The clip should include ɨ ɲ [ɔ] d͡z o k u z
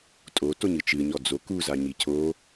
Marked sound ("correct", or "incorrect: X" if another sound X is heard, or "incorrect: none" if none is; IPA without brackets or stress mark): correct